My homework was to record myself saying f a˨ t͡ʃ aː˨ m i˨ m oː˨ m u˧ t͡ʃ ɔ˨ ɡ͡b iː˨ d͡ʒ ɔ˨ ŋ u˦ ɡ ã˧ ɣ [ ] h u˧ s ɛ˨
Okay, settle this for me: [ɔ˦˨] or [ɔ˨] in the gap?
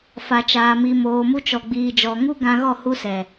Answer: ɔ˦˨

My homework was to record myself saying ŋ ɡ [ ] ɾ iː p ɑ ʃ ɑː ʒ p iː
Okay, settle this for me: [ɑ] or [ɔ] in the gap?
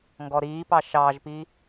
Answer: ɔ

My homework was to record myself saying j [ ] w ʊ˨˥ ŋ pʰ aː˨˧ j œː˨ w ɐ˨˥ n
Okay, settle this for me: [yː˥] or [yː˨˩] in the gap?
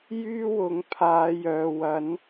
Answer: yː˥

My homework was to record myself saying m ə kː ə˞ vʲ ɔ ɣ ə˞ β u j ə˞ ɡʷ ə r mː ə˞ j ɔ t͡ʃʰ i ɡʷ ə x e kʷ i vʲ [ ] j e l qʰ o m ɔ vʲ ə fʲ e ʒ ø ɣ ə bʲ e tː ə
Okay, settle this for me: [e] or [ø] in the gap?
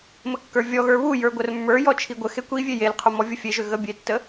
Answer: e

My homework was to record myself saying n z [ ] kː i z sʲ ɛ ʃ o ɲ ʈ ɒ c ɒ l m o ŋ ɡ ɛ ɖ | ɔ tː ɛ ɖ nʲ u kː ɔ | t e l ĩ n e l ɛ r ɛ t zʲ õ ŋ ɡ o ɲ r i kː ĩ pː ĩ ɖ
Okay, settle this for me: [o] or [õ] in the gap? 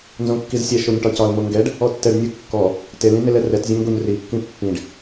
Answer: õ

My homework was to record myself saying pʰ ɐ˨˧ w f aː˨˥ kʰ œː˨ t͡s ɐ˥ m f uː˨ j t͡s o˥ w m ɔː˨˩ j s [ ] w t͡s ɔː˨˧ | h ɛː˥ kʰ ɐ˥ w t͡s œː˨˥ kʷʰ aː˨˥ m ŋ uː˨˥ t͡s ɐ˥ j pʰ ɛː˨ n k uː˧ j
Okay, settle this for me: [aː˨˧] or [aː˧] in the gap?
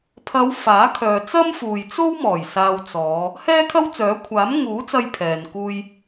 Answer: aː˧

